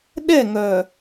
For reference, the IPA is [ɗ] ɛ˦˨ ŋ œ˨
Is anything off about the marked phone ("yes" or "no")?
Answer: no